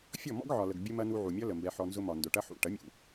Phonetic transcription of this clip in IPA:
fʲ ɔ˦˨ m ɔ̰˦ ɡ ʕ ɒ˨ l ə˨ ɡ bʲ ə˦ m ɐ˦ n u˧ ʕ u˨ mʲ ɒ˦ l ə˨ m b ɛ˧ ħ ɔ˧ n z ʊ˦ m ɒ˨ n d ʊ˨ ʈ ɐ˦ ħ ṵ˨ ʈ ɐ˨˦ mʲ ṵ˨

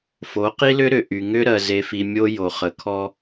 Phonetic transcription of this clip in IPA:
f o˨˦ q i˦ l ʏ˦ ɾ ʏ˨ ʔ y˨ ŋ ʏ˦ ɾ ɜ˨ z e˨ f i˨ mʲ o˦ j o˨ χ ə˨ kʰ ɔ˦

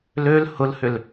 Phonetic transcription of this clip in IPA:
l ø l h ʊ l h ʏ l

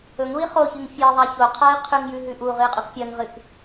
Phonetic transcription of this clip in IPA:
ɵ ŋ ɾ u i̯ χ o ç ɨ ŋ fʲ e ðˤ a ç o qʰ a i̯ qʰ ʉ ŋ j ʉ ɦ ʉ ʔ u ʁ ɨ i̯ qʼ u k pʲ ɐ ŋ ʁ ɨ k

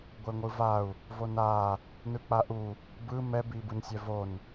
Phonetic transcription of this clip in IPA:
ɡʷ e ŋʷ ɯ v a u̯ | v o n a | n ɯ k͡p a ʔ u | b ɯ m ɛ b i b ɯ n sʲ ɛ v o n

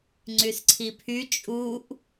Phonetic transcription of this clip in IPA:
ŋ͡ǀ y s ǀʰ i pʰ y t͡ʃʼ u ʔ

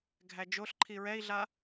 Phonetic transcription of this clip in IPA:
ɡʱ æ d͡ʒ o ɬ ǃʰ i ɹ ɛ i̯ ɮ a

